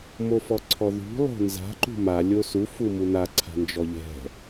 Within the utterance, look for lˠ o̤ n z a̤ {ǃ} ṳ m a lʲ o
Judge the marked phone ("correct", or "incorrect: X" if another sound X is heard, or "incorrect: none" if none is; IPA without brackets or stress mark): correct